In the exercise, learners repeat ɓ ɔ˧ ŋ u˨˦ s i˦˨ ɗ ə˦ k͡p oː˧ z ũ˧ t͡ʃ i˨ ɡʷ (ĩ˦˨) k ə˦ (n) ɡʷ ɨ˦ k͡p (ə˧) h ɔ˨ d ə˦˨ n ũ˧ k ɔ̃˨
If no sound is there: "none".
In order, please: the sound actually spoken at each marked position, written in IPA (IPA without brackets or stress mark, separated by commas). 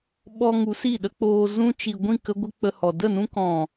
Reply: ĩ˦˨, none, ə˧